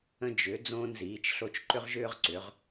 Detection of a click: present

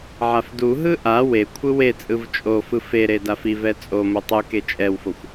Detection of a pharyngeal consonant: present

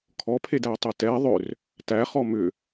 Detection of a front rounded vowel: present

